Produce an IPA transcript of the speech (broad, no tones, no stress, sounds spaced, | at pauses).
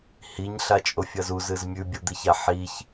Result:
h i ɲ ɬ a t͡ʃʼ o fʲ ɐ z u z ɨ z mʲ ʉ bʲ u d̪ i ç a ħ i ç